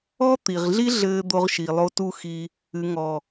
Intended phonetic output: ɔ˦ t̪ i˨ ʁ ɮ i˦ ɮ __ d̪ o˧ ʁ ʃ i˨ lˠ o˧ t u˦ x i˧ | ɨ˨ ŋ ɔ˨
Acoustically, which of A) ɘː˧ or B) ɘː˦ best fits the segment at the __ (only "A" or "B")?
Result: A